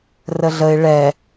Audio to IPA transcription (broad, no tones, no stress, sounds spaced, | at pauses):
r ə ɮ ə ɪ̯ ɭ ɛ